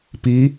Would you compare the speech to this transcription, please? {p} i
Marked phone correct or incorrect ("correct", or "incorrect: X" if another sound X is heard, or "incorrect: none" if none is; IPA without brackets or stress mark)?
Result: correct